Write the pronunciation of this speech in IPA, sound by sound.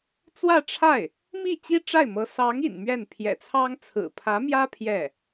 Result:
t͡s w ä˥˧ ʈ͡ʂʰ a˥˩ ɪ̯ | m i˥˩ t͡ɕ i˥ ʈ͡ʂ a˥˩ ɪ̯ m ɤ˧˥ s ɑ˧˥ ŋ ḭ˨˩ n m ɥ ɛ˥˩ n pʰ j ɛ̰˨˩ t͡sʰ ɑ˥ ŋ t͡sʰ ɹ̩˨˩ pʰ ä˧˥ m j ä˥ pʰ j ɛ˥˩

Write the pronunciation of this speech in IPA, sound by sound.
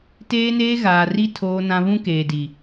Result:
t eː˦ n eː˦ ɣ aː˨ r i˦ tʰ oː˦ n ã˦ β ũ˦ k eː˨ d i˨

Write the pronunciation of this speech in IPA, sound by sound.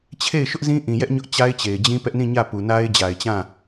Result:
t͡ɕʰ e˦˨ ɪ̯ ʃ ʊ˦ ʔ z ĩ˦ ʔ ĩ˨ j ɛ˦ ʔ ɲ ʊ˦ ʔ t͡ɕ a˦ ɪ̯ t͡ɕ e˨ ɪ̯ d͡ʑ ĩ˦ p ɛ˦ ʔ n ĩ˦˨ ɲ ä˦˨ p u˨ n a˦ ɪ̯ d͡ʑ a˨ ɪ̯ t͡ɕ ã˦˨

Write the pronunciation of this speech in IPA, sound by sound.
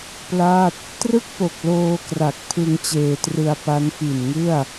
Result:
p l a˥˩ t̚ | t r ɯ˥˩ k̚ p o˨˩ k̚ l oː˧ k r a˨˩ k̚ pʰ ɯ˧ ŋ t͡ɕ eː˧ t r ɯ˧ a̯ p a˦˥ n f i˨˩ n ŋ ɯ˥˩ a̯

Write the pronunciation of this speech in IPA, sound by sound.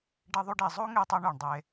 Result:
ɖ e˧ ðˤ u˧ ɖ i˨ zˤ o˦ ŋ e˧ tˤ ɤ˧ ɳ u˨ ɳ dˤ e˧

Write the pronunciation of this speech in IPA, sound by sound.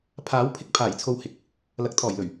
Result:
pʰ aː˨˥ w pʰ ɪ˧ k̚ pʰ aː˨˩ j t͡sʰ o˧ w h ɪ˨ k̚ | l ɐ˨˥ k̚ t̪ʰ ɔː˨˩ j l ɵ˨˩ ɥ

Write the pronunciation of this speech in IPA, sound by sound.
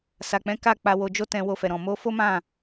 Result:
s a˨ k͡p ɛ̃˨˦ k a˦˨ k͡p a˧ w o˧ d͡ʒ o˦ t ɛ̃˧ w o˧ f ɛ˨ ɾ ɔ̃˨ m o˧ f o˦ m ã˦˨

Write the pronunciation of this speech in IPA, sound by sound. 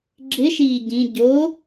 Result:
ɡ͡ǁ ɪ ʃ iː ɟ ĩ ɟ o

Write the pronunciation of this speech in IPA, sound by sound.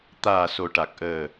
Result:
t̪ aː˨˩ s o˨˩ ʈ a˨˩ k̚ ʔ əː˨˩

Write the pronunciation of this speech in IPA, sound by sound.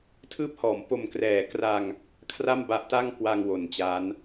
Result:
tʰ ɯː˦˥ p̚ h ɔː˩˦ m p o˨˩ m k r ɛː˩˦ k r a˧ ŋ | kʰ r a˥˩ m b a˦˥ ʔ t a˥˩ ŋ k w a˧ ŋ w o˨˩ n t͡ɕ a˦˥ n

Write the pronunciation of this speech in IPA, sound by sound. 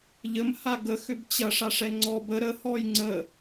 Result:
ʎ ə m h a ɡ ə x ʏ b t͡ɕ ɐ ʂ a ʂ ɛ ŋ͡ǀ ɔ b ə ɾ ə h ɔ j ŋ͡ǀ ə

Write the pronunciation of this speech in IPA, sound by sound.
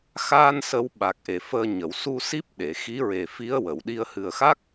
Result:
x aː˧ n s ə˨˩˦ w ɓ a˨˩ k̚ ʔ e˨˩˨ f əː˧ ɲ ə˨˩˨ w s u˧ s i˦˥ p̚ ɗ e˨˩˨ x i˧˥ ɹ e˨˩ f i˧˥ ə̯ w ə˨˩˨ w ɗ i˧ ə̯ h ɨ˨˩ ə̯ x a˦˥ k̚

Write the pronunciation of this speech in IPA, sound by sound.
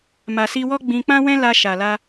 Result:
m a˨ s i˧ w ɔ˦ ɡ͡b ĩ˧ k͡p ã˦ w ɛ̃˦ l a˧ ʃ a˨ l a˧

